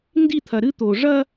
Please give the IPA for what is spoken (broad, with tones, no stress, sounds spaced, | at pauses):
n d i˦˨ t̪ʰ ɐ˨ ɾ ɨ˦ t̪ o˨ ʐ ɐ˦